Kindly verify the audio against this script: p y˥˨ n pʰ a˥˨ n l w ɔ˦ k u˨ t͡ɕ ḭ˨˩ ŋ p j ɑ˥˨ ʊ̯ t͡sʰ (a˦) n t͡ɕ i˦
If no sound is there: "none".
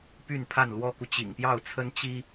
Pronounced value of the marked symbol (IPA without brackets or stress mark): ə˦